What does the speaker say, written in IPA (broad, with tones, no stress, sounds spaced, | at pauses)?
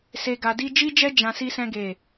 s e˧ ɡ a˧ d i˦ d͡ʒ i˦ d͡ʒ ɛ˦ d͡ʒ ã˦ s i˦ s ɛ̃˦ ɡ e˦˨